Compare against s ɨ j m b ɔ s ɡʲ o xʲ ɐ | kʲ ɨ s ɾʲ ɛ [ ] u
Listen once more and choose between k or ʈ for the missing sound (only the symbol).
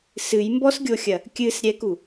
k